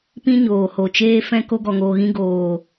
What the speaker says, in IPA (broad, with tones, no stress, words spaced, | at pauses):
pĩ˦ ɲoː˨ho˨ t͡ʃeː˦fɛ̃˦ ko˧ɡɔ˨ŋoː˨ɣĩ˧ ɡoː˨